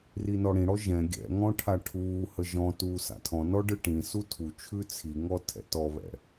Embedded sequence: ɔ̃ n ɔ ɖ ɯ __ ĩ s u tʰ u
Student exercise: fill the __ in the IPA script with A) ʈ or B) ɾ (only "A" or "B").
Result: A